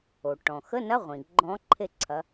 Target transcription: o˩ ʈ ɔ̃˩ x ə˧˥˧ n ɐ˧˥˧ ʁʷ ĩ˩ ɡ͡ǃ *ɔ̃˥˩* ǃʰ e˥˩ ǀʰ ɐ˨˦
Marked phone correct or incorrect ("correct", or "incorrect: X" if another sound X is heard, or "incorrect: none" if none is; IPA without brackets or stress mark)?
incorrect: ɔ̃˨˦